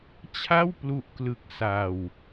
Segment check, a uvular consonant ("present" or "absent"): absent